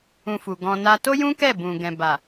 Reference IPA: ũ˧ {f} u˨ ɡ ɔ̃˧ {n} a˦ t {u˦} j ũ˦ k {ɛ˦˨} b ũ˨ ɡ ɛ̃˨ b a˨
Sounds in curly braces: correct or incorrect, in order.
correct, correct, incorrect: o˦, correct

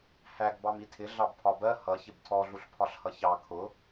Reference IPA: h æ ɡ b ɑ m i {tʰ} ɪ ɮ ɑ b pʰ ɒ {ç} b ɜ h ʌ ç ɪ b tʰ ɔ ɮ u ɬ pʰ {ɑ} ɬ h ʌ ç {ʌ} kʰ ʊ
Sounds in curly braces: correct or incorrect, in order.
correct, incorrect: none, incorrect: ɒ, incorrect: ɑ

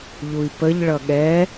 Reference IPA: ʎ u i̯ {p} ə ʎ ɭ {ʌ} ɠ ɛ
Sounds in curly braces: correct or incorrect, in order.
correct, correct

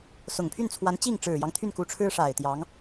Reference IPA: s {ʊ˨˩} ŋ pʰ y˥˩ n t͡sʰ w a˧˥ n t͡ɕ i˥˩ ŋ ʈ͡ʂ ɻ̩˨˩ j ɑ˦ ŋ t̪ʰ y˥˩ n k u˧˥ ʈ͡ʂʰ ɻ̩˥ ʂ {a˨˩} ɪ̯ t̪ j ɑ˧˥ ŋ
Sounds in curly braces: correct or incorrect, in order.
correct, correct

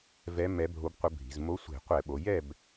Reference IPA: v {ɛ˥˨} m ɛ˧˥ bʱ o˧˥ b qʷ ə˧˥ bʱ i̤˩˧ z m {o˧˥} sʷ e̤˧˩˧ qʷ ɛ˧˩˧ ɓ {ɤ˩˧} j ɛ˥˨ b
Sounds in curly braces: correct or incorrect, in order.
incorrect: ɛ˧˥, correct, incorrect: o˩˧

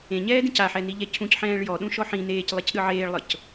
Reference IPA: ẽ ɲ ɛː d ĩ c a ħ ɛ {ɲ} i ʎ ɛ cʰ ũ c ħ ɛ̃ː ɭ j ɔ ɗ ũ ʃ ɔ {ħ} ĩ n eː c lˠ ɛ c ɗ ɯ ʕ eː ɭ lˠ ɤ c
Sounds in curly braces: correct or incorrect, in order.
incorrect: n, correct

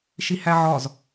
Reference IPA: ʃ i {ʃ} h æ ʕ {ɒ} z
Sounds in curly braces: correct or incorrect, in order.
incorrect: none, correct

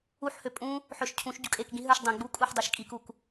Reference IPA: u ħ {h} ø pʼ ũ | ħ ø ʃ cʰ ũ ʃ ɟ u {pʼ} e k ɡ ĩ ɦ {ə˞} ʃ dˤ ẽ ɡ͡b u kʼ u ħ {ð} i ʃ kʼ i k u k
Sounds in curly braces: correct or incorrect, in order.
correct, incorrect: kʼ, correct, incorrect: dˤ

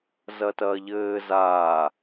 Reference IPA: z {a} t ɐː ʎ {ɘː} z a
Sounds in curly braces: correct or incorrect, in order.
incorrect: ɐ, correct

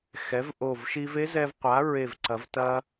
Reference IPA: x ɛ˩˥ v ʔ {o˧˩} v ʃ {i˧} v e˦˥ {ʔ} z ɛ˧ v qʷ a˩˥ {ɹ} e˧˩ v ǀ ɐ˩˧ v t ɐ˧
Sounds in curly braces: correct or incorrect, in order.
correct, correct, incorrect: none, correct

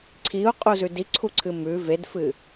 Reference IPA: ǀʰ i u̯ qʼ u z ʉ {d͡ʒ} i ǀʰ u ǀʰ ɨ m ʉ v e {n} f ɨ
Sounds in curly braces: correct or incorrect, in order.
incorrect: d, incorrect: d

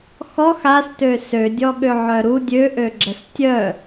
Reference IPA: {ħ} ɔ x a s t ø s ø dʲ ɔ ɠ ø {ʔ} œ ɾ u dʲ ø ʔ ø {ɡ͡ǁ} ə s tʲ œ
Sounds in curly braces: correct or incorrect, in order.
incorrect: x, incorrect: ʕ, correct

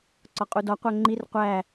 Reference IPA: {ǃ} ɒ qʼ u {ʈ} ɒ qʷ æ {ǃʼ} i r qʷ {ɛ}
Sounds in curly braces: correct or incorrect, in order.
incorrect: ǀ, incorrect: d, incorrect: ŋ͡ǃ, incorrect: æ

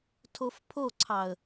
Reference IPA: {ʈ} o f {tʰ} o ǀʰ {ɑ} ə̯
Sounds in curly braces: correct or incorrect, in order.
incorrect: tʰ, incorrect: pʰ, correct

